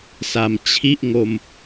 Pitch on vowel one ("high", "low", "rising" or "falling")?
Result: low